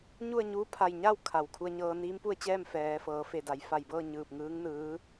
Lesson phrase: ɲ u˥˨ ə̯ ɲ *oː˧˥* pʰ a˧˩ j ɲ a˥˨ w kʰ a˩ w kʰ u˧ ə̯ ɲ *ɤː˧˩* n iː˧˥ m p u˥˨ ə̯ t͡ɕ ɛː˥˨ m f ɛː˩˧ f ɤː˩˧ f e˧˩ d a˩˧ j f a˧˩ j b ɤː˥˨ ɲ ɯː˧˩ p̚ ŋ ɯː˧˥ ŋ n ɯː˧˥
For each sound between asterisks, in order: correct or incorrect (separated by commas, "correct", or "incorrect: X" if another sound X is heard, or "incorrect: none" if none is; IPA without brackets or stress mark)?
incorrect: uː˧˥, incorrect: ɤː˧